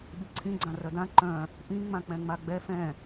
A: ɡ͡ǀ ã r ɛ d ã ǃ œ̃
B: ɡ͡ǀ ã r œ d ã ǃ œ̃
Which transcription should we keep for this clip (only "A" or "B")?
B